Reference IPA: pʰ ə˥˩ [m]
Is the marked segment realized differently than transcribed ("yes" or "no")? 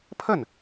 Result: yes